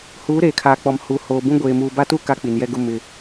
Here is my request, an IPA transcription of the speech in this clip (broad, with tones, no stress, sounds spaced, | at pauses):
h uː˨˦ ɾ eː˨ kʰ aː˨ k͡p ɔ˨ m h u˨ h oː˨ b ũ˦ ɡʷ eː˨ m uː˨ b a˦ t u˦ k a˦ k͡p i˨ n j ɛ˦ ɡ ʊ˦ m ɪ˨